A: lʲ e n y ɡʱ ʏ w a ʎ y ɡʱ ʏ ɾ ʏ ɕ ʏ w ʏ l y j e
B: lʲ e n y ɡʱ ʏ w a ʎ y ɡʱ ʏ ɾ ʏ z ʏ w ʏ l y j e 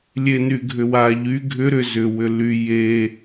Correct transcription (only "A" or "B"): B